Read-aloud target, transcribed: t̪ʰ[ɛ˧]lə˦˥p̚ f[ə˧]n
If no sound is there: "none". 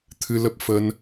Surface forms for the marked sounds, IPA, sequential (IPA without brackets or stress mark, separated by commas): ɨ˧, ə˧